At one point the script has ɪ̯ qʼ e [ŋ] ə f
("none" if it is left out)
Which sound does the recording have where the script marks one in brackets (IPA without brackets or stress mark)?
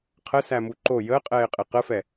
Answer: q